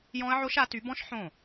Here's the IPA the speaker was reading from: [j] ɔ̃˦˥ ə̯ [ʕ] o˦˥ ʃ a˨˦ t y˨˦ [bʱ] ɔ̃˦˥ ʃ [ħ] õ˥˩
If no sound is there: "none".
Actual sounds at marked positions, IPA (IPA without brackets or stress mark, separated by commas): j, ʕ, b, ħ